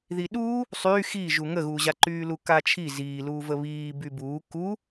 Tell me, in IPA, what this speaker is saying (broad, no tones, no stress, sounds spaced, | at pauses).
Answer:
ð i ɗ uː | sˤ yː x i ʒ u ŋ ə ɣ uː ʑ a ǃ yː l u k a t͡ʃʰ i z iː l uː v ə β iː b y b uː k u